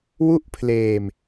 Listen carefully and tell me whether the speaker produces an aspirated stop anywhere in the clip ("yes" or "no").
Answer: yes